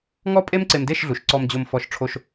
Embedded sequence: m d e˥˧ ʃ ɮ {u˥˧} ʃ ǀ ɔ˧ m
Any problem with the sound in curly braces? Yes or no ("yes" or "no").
yes